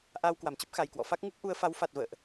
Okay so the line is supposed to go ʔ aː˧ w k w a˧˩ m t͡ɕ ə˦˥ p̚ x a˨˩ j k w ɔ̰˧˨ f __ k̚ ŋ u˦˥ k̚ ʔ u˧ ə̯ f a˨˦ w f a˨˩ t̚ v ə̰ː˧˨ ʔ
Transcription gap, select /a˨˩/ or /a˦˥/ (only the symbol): a˦˥